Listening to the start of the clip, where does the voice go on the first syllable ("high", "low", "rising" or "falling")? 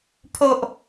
high